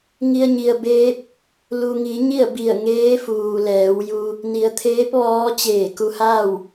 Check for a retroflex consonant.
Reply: absent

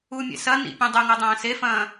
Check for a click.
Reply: absent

